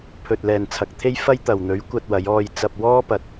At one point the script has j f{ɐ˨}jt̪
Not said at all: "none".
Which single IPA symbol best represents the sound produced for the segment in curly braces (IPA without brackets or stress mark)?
ɐ˧